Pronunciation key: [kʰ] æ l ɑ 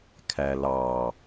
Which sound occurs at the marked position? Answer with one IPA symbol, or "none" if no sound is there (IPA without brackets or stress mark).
kʰ